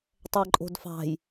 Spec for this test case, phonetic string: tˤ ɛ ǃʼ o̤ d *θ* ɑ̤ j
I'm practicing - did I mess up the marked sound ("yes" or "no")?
yes